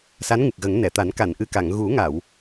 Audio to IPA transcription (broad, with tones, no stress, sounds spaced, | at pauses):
s a˧˥ n ŋ ɨ˨˩ k̚ ɣ ə˨˩˦ ŋ n ɛ˨˩˨ t̪ a˨˩˦ n k a˨˩˨ n ʔ ɨ˨˩ k a˨˩˨ ŋ ɣ u˨˩˦ ŋ a˨˩˨ w